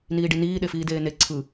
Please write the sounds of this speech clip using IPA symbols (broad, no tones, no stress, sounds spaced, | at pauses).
n iː ɖ i n iː ɗ e f iː d eː n e ǀʰ ɯ